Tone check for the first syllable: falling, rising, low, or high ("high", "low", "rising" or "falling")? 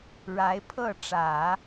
rising